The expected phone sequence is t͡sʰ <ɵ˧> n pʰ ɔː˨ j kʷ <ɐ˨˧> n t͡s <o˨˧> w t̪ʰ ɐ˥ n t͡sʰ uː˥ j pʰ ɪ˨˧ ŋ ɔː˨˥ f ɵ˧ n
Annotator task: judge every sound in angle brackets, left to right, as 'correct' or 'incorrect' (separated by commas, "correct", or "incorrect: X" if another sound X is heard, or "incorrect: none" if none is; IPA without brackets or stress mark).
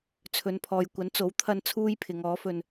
incorrect: ɵ˨˧, incorrect: ɐ˨˥, incorrect: o˨˥